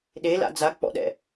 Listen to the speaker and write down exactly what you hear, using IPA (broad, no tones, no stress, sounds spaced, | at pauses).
ɗ e l a̰ d͡z a k͡p ɔ̰ ɗ ɛ̰